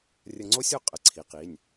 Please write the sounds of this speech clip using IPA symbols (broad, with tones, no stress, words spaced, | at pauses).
rʲə˧ŋ͡ǀo˥sʲo˥qʼə˩˧˩ ǀʰi˩˧qi˩˧˩nʲ